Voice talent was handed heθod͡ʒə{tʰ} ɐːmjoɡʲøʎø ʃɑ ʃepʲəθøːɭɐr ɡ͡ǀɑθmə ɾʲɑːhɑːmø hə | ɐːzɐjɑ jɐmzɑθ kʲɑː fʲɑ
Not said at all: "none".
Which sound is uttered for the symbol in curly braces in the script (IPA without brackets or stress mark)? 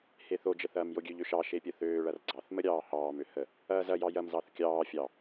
θ